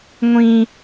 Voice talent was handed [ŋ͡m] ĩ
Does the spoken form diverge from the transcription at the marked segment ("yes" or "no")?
yes